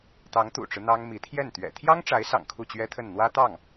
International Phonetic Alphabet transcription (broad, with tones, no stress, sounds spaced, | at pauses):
t̪ ɑ˧˥ ŋ t̪ ṵ˨˩ ʈ͡ʂ ɻ̩˦ n̪ ɑ˥ ŋ m i˧˥ t̪ʰ j ɛ˥˩ n t̪ ɥ ɛ̰˨˩ t̪ʰ j ɑ˥ ŋ ʈ͡ʂ a˧˥ ɪ̯ s ɑ̰˨˩ ŋ kʰ u˥˩ t͡ɕ ɥ ɛ˥ t̪ʰ ə˥˩ n n̪ w ä˥ t̪ ɑ˥˩ ŋ